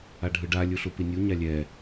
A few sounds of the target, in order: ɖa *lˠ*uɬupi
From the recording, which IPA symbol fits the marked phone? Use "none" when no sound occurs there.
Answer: lʲ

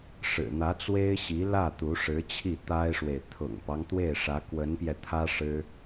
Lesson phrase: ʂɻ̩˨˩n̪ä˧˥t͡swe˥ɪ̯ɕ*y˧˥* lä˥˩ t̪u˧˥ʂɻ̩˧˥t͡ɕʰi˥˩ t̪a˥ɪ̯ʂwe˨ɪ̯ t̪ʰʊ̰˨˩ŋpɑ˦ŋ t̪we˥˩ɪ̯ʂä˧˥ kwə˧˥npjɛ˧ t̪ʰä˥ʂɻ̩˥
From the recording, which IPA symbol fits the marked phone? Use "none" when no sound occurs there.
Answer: i˧˥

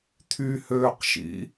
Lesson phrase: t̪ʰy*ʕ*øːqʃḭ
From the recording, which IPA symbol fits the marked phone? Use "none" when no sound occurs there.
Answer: h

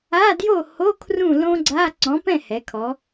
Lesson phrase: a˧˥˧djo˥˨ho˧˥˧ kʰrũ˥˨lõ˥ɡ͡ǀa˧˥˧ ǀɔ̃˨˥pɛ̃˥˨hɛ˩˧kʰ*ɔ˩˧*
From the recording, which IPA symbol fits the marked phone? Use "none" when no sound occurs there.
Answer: ɔ˩˧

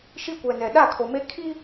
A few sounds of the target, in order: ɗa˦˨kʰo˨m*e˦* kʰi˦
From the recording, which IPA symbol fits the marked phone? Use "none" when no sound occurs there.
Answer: e˦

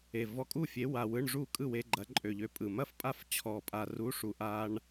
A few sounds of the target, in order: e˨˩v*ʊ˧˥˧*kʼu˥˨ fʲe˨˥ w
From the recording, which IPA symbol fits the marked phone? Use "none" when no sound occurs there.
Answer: ɔ˧˥˧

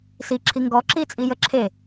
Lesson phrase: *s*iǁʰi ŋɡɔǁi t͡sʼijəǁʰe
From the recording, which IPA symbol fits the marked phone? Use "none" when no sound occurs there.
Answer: s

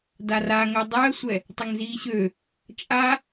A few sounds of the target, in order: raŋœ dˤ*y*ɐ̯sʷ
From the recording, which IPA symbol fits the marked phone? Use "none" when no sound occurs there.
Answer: y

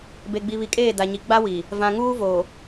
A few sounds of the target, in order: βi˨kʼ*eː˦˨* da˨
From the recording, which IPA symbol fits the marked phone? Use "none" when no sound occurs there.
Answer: eː˦˨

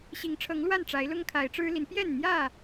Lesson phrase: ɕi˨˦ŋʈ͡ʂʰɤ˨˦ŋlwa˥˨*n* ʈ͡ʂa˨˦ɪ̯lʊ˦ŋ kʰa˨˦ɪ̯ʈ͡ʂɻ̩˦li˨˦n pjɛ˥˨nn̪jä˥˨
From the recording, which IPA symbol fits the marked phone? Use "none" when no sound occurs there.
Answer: n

